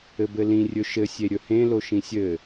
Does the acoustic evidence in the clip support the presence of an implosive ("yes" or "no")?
no